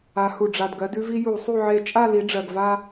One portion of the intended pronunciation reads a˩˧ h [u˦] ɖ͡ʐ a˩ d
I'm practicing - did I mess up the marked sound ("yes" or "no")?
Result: yes